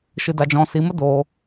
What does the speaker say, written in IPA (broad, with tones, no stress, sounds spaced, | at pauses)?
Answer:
ʃ ɨ˧ d a˧ d͡ʒ ɔ̃˧ s i˨˦ m ə˦ d oː˧